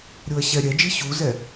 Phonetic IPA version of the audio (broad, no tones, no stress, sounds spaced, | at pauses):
ɾʲ o ɐ̯ ɕ ɛ ɾʲ ɛ d͡ʒ i ɕ u z ɛ